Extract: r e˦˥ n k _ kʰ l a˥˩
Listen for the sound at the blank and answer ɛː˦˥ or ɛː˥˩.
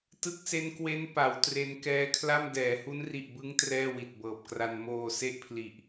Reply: ɛː˦˥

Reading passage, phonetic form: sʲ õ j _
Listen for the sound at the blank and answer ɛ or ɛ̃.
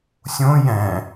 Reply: ɛ̃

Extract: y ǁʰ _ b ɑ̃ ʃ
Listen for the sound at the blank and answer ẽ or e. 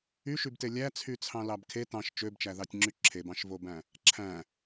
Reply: e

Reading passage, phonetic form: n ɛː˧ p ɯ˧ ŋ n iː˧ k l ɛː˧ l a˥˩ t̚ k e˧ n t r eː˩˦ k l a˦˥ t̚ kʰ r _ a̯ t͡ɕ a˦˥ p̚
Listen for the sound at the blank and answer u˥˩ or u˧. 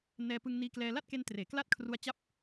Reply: u˧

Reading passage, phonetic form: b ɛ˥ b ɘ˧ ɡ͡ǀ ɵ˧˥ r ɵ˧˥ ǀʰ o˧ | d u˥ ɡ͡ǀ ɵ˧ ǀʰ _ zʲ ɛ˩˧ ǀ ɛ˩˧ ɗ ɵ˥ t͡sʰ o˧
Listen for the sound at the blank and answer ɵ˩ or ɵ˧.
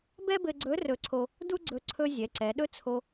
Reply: ɵ˧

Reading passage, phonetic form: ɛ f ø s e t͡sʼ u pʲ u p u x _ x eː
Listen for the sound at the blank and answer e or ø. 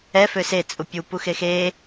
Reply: e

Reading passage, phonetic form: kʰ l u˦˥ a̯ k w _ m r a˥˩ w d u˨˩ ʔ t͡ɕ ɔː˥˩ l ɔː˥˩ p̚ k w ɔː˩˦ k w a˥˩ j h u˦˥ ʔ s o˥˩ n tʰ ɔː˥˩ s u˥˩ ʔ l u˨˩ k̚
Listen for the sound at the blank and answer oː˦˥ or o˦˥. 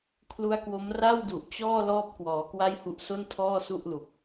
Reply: o˦˥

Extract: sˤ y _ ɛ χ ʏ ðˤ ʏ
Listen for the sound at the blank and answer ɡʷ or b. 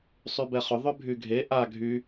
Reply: b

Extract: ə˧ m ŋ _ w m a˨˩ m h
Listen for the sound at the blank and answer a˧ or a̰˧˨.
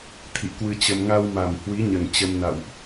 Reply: a˧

